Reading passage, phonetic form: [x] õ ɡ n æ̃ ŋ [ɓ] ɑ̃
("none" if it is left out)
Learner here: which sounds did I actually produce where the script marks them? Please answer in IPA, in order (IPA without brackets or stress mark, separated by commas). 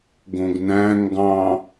ɡ, ɡ